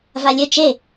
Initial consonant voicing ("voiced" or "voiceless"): voiced